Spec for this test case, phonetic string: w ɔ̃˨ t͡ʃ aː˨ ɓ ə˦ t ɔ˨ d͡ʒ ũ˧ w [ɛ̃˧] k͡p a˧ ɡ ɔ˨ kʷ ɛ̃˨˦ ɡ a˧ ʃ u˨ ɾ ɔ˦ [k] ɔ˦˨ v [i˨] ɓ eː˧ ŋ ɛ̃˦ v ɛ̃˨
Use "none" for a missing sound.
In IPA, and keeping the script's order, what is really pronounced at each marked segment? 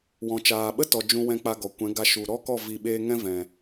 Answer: ɛ̃˧, k, i˨

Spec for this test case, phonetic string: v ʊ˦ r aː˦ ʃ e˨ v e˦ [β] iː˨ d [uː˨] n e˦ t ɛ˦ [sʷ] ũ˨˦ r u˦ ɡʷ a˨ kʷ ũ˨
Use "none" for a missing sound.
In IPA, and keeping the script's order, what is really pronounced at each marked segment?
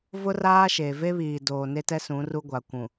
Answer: β, oː˨, s

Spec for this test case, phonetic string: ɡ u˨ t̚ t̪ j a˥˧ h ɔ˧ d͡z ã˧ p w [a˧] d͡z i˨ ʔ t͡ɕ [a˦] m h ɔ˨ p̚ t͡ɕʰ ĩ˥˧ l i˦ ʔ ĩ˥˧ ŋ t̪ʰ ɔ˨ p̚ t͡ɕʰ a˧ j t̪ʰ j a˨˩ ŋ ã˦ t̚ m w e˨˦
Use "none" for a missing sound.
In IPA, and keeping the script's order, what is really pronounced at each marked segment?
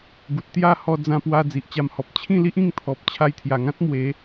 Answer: a˧, a˧

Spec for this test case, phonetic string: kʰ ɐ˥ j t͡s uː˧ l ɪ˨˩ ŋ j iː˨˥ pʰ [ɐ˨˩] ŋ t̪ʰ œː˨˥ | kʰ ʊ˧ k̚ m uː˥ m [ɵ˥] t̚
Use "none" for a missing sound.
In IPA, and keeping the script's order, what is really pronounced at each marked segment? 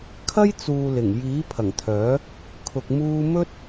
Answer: ɐ˨˩, ɵ˥

